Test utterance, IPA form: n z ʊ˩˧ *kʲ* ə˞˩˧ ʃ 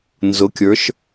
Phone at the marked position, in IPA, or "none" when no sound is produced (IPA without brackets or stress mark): kʲ